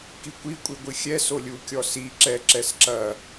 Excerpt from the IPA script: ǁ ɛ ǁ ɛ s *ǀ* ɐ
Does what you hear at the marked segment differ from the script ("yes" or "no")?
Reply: yes